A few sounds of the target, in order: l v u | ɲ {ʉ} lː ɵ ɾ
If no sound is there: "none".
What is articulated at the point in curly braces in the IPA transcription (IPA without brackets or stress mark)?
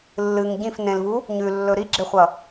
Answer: ʉ